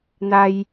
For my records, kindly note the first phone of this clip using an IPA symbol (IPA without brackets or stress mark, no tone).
n̪